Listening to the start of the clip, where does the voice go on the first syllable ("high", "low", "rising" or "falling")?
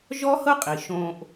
high